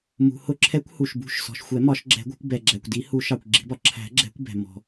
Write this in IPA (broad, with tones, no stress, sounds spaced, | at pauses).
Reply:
m ṳ˩ h ʊ˨˩˦ ǁʰ ɛ˨˩˦ kʷ h u˩ ʃ b ṳ˨˩˦ ʃ s ɔ̤˩ ʃ xʷ ɛ˨˩˦ m ɒ˨˩˦ ʃ ɡ͡ǁ ɛ̤˨˩˦ ɡʷ ɛ̤˨˩˦ kʷ b ɛ˩ ɡ͡ǁ æ˩ kʷ d i˨˩˦ h u˨˩˦ ʃ ɑ˩ kʷ ɡ͡ǁ i̤˨˩˦ b ɒ˩ ǁʰ æ̤˨˩˦ ɡ͡ǁ ɛ̤˨˩˦ kʷ b ɛ̤˩ m ɔ̤˩